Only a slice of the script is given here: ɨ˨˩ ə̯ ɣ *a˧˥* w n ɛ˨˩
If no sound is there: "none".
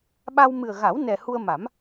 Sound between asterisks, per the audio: a˨˩˦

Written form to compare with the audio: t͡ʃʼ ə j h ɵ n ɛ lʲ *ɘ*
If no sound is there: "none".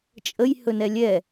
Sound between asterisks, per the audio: ɛ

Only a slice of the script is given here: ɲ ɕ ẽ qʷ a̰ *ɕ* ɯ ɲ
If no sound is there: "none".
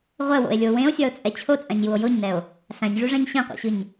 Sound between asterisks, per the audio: ɕ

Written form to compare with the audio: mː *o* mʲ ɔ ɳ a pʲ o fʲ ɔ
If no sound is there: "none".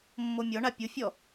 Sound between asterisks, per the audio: o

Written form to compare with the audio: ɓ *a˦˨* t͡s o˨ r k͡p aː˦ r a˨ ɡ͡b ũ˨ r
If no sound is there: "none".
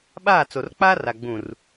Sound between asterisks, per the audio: aː˦˨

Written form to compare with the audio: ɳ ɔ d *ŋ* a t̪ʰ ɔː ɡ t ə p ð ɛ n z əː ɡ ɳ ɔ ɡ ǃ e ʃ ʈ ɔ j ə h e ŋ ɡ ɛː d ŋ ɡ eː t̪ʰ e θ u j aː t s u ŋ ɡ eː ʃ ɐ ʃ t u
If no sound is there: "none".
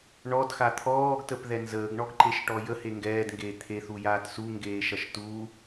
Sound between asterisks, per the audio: x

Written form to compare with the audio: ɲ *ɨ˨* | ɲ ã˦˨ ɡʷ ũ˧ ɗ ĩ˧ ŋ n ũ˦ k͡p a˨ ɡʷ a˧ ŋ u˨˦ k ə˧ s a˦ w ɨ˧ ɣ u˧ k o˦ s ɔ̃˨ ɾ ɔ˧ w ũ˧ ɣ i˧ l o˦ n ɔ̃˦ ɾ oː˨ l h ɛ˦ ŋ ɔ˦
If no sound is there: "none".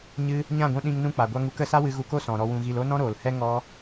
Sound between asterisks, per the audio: ɨ˦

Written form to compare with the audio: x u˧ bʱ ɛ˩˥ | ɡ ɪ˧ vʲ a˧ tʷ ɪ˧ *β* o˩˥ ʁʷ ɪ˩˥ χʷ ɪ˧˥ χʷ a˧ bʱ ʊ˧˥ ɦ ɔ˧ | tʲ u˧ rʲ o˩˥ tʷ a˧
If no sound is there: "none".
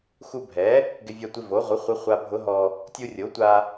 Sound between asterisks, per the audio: v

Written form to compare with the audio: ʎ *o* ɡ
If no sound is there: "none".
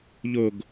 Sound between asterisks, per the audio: o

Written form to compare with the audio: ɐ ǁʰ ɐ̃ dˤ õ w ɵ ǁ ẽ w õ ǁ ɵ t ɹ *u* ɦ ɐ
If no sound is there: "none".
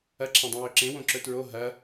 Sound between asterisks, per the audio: o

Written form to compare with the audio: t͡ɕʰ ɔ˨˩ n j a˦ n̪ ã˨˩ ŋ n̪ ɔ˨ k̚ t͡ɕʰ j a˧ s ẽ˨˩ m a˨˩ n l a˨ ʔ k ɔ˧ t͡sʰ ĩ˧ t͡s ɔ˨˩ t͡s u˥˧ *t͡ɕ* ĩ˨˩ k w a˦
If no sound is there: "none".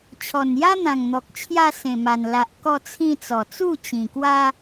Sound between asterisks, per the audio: t͡ɕ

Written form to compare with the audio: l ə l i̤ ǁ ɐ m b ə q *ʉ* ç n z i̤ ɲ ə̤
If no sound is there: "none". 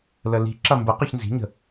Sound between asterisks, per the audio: ʉ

